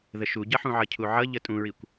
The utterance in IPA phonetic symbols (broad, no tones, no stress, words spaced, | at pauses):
ðəʃuɟʌħũ ʕʌcʰuʕʌ ʎətʼũɹikʷ